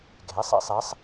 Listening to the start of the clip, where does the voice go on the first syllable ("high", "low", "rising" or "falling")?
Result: rising